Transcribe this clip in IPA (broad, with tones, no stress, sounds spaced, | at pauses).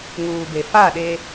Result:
ŋ uː˨ b e˨ f a˦˨ ɗ e˦